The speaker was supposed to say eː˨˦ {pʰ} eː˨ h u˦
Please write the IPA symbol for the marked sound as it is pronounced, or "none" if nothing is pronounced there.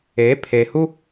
pʰ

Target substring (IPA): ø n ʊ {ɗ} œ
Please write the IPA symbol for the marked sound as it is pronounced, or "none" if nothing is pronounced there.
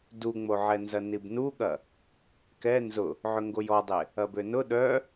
ɗ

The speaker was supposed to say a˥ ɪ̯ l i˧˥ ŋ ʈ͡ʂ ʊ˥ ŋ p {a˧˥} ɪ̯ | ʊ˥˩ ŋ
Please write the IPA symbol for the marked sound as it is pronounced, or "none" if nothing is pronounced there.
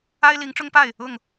a˥˩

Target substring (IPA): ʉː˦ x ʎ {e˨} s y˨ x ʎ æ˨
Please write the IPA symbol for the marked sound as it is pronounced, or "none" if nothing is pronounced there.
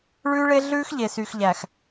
e˨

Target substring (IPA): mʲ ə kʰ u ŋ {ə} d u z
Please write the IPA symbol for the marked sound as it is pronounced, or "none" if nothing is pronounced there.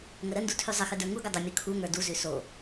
ə˞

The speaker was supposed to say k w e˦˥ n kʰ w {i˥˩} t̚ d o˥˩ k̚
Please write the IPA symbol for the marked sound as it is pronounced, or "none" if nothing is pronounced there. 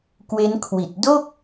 i˨˩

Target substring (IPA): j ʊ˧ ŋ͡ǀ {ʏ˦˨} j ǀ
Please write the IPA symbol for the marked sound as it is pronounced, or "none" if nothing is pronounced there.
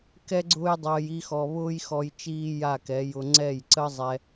ɛ˦˨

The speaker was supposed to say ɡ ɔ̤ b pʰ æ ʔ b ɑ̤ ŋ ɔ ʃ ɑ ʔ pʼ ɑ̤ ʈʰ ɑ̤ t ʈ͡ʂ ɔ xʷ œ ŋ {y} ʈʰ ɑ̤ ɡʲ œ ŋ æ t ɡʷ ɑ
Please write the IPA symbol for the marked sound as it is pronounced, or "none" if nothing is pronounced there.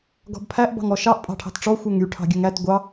y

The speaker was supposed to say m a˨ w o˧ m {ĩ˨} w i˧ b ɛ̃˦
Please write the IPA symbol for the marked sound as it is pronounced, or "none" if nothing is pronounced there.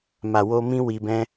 ĩ˦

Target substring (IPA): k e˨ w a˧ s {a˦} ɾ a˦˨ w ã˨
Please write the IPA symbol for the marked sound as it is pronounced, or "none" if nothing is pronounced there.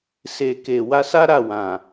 a˦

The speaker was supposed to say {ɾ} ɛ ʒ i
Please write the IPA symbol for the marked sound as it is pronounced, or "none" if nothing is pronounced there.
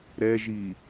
ɾ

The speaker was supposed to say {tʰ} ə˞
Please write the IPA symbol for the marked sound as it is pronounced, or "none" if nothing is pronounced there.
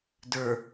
d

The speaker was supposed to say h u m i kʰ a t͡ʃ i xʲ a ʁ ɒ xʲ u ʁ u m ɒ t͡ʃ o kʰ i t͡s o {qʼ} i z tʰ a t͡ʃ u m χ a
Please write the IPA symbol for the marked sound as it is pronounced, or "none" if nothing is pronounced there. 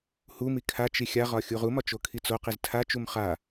q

